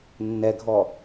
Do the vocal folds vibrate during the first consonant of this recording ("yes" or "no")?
yes